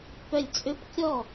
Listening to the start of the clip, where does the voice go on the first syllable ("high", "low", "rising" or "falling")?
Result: falling